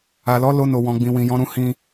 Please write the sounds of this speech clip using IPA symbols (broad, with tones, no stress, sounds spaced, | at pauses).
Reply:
a˨ l ɔ˨˦ l o˧ n o˨ w ɔ̃˨ ɡ͡b ĩ˨ w ĩ˨ j ɔ̃˨˦ ɾ ũ˧ h ĩ˦